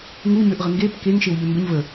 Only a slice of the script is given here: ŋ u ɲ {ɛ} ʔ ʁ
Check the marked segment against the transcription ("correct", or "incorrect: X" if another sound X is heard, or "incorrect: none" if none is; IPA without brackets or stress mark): incorrect: ø